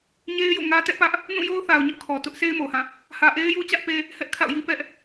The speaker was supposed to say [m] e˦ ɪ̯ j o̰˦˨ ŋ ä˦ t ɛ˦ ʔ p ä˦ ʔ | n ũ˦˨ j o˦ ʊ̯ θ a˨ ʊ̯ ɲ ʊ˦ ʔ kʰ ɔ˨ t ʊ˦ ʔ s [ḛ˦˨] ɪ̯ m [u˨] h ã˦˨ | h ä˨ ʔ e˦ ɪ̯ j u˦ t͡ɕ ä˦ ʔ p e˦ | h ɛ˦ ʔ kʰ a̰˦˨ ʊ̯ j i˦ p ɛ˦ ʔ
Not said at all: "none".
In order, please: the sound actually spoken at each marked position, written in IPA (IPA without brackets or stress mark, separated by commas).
ɲ, e˦, o˨